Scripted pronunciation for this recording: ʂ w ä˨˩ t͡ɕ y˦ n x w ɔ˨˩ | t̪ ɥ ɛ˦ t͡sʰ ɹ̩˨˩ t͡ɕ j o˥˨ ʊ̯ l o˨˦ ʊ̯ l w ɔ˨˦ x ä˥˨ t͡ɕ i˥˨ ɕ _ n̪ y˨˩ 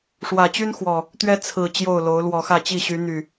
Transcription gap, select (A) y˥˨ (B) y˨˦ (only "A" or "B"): B